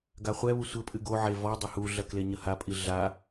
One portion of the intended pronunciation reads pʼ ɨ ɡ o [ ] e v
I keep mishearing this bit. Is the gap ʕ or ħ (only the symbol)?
ʕ